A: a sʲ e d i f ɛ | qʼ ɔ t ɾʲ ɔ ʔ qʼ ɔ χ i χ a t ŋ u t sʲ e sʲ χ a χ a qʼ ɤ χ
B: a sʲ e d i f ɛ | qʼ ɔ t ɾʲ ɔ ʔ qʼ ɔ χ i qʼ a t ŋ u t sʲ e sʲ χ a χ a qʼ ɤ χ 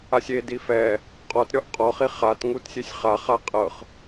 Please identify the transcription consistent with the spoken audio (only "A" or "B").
A